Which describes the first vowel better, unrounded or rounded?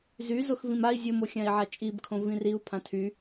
rounded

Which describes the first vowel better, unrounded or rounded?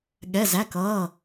unrounded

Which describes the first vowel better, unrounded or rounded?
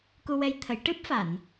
rounded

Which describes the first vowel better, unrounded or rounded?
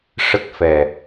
unrounded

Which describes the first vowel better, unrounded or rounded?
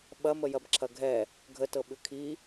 unrounded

